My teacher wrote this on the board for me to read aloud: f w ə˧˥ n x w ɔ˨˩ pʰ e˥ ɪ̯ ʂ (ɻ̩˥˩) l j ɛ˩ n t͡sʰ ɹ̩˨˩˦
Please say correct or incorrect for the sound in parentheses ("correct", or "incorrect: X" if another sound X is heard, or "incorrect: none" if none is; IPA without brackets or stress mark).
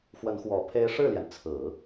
correct